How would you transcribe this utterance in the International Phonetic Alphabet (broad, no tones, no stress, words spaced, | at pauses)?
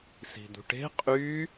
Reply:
si̤d̪ṳʈe̤ qʼy